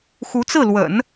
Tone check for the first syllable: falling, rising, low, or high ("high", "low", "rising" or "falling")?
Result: rising